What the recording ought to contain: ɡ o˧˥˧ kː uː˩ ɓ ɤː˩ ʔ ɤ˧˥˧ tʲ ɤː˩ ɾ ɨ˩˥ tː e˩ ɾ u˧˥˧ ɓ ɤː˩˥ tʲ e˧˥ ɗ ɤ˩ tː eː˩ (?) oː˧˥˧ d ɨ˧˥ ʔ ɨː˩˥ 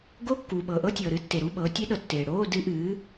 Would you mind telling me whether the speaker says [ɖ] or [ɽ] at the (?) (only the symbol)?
ɽ